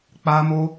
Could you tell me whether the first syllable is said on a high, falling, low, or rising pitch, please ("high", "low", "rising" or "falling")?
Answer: high